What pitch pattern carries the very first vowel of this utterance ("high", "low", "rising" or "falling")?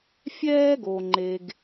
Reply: high